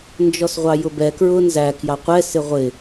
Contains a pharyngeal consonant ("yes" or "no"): no